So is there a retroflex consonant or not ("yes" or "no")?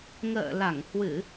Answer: no